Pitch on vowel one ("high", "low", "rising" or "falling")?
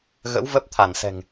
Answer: rising